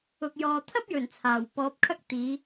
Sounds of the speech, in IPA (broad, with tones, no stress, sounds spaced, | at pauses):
ʊ˨ k̚ j ɔː˨ t̪ʰ ɐ˥ p̚ j ɵ˨˩ n t͡sʰ aː˨˩ w p ɔː˨˥ p̚ kʰ ɐ˥ k̚ t̪ iː˨˧